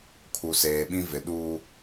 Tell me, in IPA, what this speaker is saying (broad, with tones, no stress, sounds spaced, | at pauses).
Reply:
kʰ u˨ s eː˨ ɓ ĩ˦ v ɪ˨ ɗ uː˦